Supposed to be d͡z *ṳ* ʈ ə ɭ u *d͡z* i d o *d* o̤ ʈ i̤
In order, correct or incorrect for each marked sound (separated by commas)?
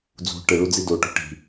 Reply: correct, correct, incorrect